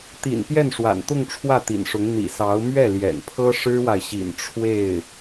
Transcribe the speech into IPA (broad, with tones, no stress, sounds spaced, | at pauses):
t̪ ḭ˨˩ n p j ɛ˥˩ n ʂ w a̰˨˩ n t̪ ʊ˥˧ ŋ ʈ͡ʂʰ w ä˥˩ t̪ ḭ˨˩ n ʂ ʊ˧˥ ŋ n̪ ḭ˨˩ s ɑ˧˥ ʊ̯ m ɥ ɛ˥˩ l j ɛ̰˨˩ n pʰ ɤ˥ ʂ ɻ̩˥ w a˨ ɪ̯ ɕ ḭ˨˩ n ʈ͡ʂʰ w e˥˩ ɪ̯